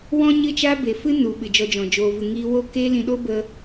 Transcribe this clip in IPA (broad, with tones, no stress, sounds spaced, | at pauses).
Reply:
w ɔ̃˦ ɲ ɨ˦˨ t͡ʃ a˦ b e˨ f ɨ˦ n u˨ ɓ ɨ˨ d͡ʒ ɔ˧ d͡ʒ ɔ̃˨ d͡ʒ oː˨ v ɨ˨ ŋ iː˧ w o˦˨ k eː˦ l ĩ˧ ɗ oː˦ b ə˧